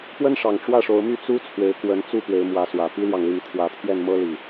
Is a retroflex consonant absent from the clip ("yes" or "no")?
no